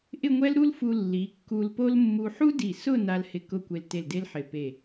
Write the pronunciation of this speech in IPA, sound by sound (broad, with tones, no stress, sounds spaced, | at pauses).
ʔ ɪ˥˧ ŋʷ ɛ˥ l ɾ u˥ l f u˧ lː i˩˧ kː u˧ l p o˥ l mː u˧ ħ u˥ d i˧˩ s ʊ˥˧ n a˧ l h ɪ˧˩ k ʊ˥˧ kʷ e˧ l t e˧˩ l d e˥ l ħ ɪ˧˩ p e˧˩